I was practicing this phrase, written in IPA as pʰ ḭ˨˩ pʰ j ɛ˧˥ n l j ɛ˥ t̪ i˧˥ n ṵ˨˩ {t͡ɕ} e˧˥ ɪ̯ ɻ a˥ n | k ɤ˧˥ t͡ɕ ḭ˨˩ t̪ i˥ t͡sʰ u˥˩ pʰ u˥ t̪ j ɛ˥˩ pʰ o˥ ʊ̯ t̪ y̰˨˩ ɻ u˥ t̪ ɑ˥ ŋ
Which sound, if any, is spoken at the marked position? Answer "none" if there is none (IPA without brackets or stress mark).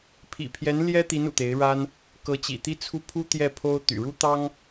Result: t̪